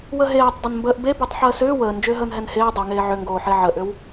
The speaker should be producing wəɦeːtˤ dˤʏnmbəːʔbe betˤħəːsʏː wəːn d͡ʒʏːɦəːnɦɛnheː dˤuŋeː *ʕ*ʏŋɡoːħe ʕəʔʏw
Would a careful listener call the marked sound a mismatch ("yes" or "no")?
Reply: no